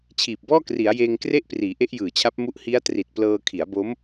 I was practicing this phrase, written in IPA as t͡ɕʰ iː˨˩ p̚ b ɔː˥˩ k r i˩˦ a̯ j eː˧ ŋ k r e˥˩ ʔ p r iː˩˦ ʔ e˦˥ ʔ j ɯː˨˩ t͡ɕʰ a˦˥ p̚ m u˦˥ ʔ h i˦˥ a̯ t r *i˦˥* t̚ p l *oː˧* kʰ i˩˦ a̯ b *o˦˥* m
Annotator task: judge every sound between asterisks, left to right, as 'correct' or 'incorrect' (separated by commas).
incorrect, incorrect, correct